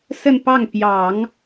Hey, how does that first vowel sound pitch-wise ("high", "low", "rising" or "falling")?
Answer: falling